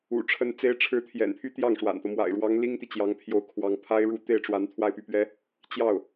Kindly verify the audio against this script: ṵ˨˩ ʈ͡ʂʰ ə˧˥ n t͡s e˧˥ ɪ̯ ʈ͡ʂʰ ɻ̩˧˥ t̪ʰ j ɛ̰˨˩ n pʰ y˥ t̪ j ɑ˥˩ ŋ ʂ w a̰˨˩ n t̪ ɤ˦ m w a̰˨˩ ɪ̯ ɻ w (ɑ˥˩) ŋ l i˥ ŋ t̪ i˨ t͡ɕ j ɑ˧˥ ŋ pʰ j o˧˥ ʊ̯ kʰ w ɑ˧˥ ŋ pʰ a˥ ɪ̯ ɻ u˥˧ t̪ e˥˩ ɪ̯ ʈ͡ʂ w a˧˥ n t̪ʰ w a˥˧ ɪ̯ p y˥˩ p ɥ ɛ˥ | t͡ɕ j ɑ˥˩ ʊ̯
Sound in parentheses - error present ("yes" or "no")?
yes